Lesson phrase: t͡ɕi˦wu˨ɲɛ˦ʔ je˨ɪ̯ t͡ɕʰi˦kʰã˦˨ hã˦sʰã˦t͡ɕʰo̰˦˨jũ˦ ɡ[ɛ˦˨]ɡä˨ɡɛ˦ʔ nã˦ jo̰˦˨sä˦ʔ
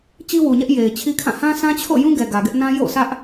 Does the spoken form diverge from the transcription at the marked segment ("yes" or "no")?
yes